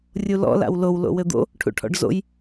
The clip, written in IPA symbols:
rʲulɔ̰ la̰wlow lo̰wɘd̪o̰ | ʈʰṵʈʰɔ̰ɖzo̰j

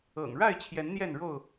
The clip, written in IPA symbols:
ɤ̰˨˩ŋ ɻa˥˨ɪ̯t͡ɕʰjɛ˨˦n n̪jɛ˥˨nɻo˥˨ʊ̯

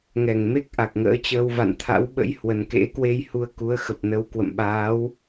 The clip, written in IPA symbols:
ŋɛ˧˩ŋme˦˥k̚ ʔa˨˩k̚ŋə̰ː˧˥t͡ɕəː˧w va̰˧˨nt̪ʰa̰˧˥w ɓə̰˧˥jhwə˨˩n kḛ˧˥kwe˧jhu˨˦ə̯ ku˨˦ə̯xə˨˩p̚nə˨˦w kwə̰˧˨mɓaː˨˦w

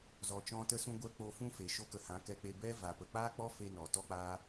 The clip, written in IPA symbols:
zɔ˨t͡ʃɔ̃˧ tə˧sũ˧ɡʷɛ˧ k͡po˧fũ˦fe˨ ʃo˦kə˧hã˨˦ kɛ˧k͡pe˧ bɛ˦ va˨ pə˨k͡paː˦k͡pɔ˦fe˧ nɔ˨ tɔ˦k͡paː˦

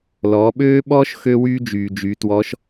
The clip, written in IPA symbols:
lɔː˩˧ɓøː˥ɓɔː˥ʃ xø˥wyː˥ d͡ʒyː˩d͡ʒy˩˧twɔ˧˥ʃ

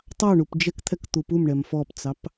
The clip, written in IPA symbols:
tˤɑɳup d͡ʒɛkt̪ʰɛk t̪upumɳɛm fɔpt͡sɑp

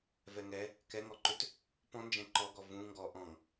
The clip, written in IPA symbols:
vɛŋɛ | kɛŋɔǃʏt | pɔ̃ nd͡ʒɛ̃ǃɔɡɔ vũ ŋɡɔ ʔɔ̃ŋ

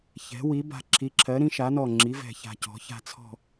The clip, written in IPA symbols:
çɛ̤˩˥ wi˩˥ba̤˧˩ǁʰi˩˥ǁʰɜ˩˥ ɾĩ˩˥ʃa˩˥nɔ˧˩ŋ͡ǁi˩˥ vɛ̤˧˩ça̤˧˩cɔ̤˩˥ ça̤˧˩t͡sʰɔ̤˧˩

